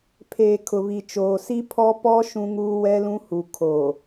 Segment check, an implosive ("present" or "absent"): absent